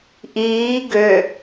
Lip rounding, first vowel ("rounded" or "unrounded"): unrounded